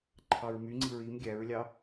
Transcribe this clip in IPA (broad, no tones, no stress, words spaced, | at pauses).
ǃʰɑɹmy ŋ͡ǀiɹim ɡʲæɹlʲɑ